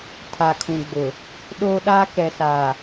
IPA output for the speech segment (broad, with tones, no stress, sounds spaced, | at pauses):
tʰ a˨ kʰ ũ˨ ɡ͡b ʊ˨ | ɗ oː˦ ɗ aː˦ k ɛ˨ s aː˨